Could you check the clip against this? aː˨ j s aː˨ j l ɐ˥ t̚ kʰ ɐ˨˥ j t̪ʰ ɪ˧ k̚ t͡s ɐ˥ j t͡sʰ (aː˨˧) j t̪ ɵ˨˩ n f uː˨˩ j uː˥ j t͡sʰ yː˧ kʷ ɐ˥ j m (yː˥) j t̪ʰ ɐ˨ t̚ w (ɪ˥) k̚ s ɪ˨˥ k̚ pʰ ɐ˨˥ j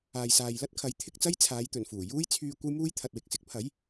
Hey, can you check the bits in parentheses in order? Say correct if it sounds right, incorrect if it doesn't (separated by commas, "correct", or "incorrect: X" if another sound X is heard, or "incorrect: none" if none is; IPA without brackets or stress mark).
correct, incorrect: uː˥, incorrect: ɪ˨